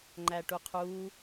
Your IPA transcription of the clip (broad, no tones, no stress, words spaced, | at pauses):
ŋ͡ǃæʈuqʰu